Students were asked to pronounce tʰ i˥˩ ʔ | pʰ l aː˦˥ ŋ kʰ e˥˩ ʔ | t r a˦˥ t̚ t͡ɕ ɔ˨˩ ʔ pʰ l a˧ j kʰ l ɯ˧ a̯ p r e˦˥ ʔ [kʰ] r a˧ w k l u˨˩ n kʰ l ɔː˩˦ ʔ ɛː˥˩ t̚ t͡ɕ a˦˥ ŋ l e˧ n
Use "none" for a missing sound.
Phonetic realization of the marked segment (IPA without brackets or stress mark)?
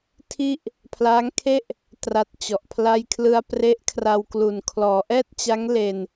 kʰ